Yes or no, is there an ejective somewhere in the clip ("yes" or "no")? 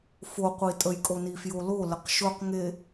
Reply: yes